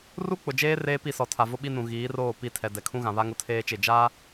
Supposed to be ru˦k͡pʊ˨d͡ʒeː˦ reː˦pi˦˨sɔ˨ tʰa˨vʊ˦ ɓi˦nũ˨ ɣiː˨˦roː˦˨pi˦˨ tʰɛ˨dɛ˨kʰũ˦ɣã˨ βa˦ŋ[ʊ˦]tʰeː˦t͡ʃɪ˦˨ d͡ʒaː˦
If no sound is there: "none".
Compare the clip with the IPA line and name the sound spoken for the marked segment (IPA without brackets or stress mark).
ʊ˦